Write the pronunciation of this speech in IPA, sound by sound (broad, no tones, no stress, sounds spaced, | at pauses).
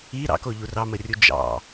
i ɾ ɑ̰ k o ʎ u r ɑ m ə rʲ u d͡ʒ ɑ̰